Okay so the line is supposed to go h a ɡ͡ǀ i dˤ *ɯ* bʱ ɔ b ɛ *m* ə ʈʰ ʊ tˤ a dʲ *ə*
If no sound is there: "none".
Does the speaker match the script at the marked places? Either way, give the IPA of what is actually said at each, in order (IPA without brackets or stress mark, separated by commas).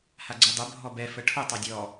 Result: ə, f, ɔ